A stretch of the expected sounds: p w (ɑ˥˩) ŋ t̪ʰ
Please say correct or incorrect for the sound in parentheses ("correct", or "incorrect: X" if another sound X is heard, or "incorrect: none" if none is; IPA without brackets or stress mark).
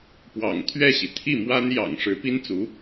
incorrect: ɑ̰˨˩